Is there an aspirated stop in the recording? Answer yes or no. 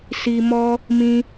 no